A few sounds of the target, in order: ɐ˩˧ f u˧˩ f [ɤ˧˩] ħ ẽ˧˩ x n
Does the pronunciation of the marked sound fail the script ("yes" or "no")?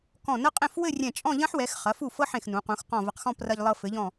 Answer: yes